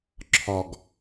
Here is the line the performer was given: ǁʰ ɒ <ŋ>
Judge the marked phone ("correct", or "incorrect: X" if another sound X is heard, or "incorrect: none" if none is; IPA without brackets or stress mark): incorrect: ɡ